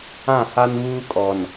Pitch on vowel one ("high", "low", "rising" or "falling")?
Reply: falling